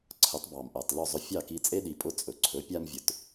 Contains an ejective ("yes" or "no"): yes